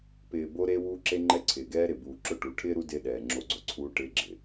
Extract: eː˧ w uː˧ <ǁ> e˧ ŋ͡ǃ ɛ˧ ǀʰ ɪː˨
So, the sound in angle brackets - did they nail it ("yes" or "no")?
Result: yes